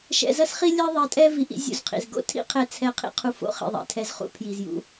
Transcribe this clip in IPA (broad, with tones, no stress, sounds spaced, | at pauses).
ʃ ɛ̰˧ z ɐ˦ s χ i˦ lʲ ɛ˦ ðˤ ɛ˧ tʼ ɛ˦ v i˧ ʔ ḭ˦ zʲ ṵ˦˨ z qʰ ḭ˨ z ɡ o̰˦ tʰ ḭ˦ qʰ ɛ˦ t͡sʰ ɛ˦ qʰ ḭ˦ qʰ u˧ f o̰˦ χ ḭ˨ ðˤ ɛ̰˨ tʰ ɛ˧ z χ ṵ˦ pʰ j i˨ z j ṵ˧